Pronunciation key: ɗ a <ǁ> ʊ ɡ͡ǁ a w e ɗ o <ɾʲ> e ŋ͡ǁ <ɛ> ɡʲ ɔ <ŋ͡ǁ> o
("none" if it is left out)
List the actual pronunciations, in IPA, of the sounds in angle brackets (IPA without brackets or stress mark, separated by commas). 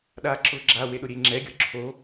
ǁ, ɾʲ, ɛ, ǁʰ